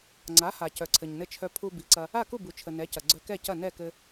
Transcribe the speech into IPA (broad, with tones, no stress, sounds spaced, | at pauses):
ŋ͡ǀ a˩˥ h a˩ c œ˩ ǀʰ ɘ˩ ɲ n ɘ˧ t͡ʃʰ œ˧ pʰ u˧ b i˩˥ ǀ ɐ˧ | a˥˩ k u˥˩ b u˩ t͡ʃʰ ə˩ n ɛ˩˥ c ɐ˩ ɡ͡ǀ œ˧ k ɛ˥˩ c ɐ˥˩ n ɛ˥˩ k ɘ˧